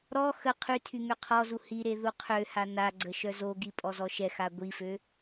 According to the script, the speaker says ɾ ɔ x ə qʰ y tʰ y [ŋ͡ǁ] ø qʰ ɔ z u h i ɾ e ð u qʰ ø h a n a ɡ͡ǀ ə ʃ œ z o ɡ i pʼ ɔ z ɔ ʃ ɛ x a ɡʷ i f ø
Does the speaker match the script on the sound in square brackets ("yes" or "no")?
no